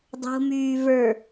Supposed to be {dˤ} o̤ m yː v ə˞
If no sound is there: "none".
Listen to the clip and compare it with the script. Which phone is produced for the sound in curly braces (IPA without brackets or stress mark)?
dˤ